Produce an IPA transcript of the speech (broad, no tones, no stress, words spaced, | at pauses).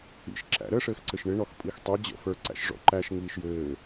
ḭʃ ǁæ̰ɾəʂɘːxǀɘʃ ɳɪɳɔx pʼixtˤe d͡ʑə̰ fə˞ǀæ̰ʃ ʐɔ̰ǃæʃ ŋiːʃjɘː